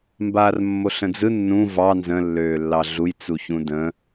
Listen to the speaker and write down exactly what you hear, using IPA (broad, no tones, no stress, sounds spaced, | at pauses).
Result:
m b aː r mː o ɬ ə̃ d͡z ɯ nː ũ v ɑ n z ə̃ lː øː lː ɑ ɮ u j t͡s u ç ũ d ə̃